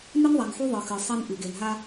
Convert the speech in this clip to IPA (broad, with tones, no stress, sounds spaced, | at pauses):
n ɨ˦ n ðˤ a˨ ŋ ħ u˦ ðˤ ɨ˨ x ɨ˨ sˤ i˦ n ʔ ɨ˨ ɡ e˨ n ɦ a˦